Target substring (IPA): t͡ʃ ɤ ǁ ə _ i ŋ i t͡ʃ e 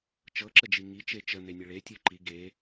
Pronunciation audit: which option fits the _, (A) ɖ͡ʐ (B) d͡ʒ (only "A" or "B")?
B